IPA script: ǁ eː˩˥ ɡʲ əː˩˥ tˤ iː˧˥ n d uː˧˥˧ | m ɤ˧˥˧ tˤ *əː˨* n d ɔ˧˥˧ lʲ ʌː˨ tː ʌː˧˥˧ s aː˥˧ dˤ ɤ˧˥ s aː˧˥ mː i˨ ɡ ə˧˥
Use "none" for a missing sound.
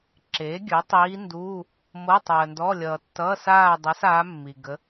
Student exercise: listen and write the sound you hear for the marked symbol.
əː˨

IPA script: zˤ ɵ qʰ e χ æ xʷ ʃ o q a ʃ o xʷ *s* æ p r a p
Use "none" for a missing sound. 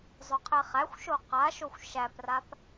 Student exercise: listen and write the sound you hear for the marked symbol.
ʃ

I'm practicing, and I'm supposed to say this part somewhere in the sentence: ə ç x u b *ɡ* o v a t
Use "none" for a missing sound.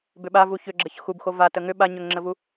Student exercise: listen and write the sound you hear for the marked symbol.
x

